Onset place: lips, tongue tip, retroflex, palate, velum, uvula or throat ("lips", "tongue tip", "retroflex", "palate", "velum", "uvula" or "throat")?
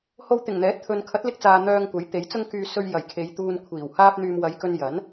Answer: throat